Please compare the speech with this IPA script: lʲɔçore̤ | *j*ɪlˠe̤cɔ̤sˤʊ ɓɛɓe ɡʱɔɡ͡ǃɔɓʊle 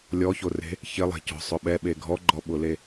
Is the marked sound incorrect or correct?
incorrect